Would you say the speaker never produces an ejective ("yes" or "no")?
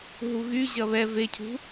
yes